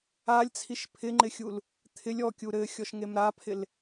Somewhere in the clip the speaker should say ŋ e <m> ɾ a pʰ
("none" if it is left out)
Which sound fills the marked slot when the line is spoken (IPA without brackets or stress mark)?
m